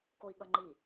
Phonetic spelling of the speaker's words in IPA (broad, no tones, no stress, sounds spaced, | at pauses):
k o i̯ ɠ ʌ ŋ͡ǃ i